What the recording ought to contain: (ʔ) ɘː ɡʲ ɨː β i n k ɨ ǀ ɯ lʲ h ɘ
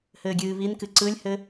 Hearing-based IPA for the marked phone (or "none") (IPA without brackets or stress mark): h